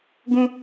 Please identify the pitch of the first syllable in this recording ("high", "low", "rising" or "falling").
high